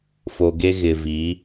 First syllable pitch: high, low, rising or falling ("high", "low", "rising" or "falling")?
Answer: low